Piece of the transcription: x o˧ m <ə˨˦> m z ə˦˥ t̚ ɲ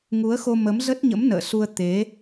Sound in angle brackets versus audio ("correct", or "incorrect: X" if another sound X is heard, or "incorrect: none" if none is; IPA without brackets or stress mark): correct